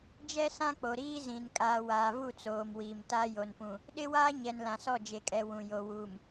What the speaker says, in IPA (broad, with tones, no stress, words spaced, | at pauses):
d͡ʒɛ˦sã˦k͡po˨ ɾiː˦zĩ˨n kʼaː˨waː˨vu˦˨ t͡soː˨mwiː˨mta˦ jo˨npũ˨ | ɗɪ˦waː˦ ɲɛ˨nlã˨sɔ˦˨ d͡ʒe˨kʼɛ˨ wũ˨jo˨ wuː˨m